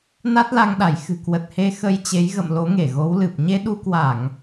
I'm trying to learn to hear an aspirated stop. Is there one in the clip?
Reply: no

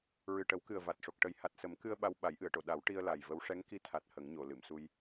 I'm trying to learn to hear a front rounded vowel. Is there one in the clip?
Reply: no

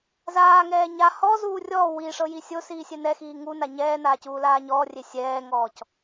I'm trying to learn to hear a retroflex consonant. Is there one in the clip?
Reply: yes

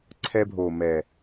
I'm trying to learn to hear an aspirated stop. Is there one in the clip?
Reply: yes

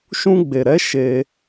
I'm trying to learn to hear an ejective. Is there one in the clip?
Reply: no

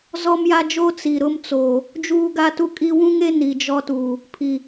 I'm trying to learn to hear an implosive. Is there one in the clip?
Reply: no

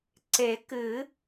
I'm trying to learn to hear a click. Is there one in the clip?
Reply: yes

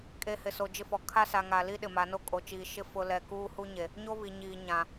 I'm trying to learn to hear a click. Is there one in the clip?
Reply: no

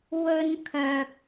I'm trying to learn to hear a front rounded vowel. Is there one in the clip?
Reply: yes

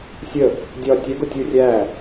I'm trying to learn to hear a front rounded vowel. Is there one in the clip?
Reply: no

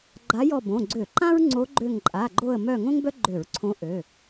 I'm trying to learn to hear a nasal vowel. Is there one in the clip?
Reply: yes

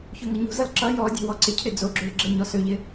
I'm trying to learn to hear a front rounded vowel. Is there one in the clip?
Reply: yes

